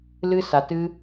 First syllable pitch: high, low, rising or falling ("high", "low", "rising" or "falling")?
high